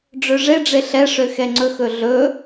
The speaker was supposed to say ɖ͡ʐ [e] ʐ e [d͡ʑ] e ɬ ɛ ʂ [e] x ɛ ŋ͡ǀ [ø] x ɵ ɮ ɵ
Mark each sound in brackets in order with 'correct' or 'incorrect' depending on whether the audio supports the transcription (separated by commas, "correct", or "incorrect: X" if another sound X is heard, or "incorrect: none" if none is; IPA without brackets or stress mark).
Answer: incorrect: ø, incorrect: ɖ͡ʐ, incorrect: ø, incorrect: ɵ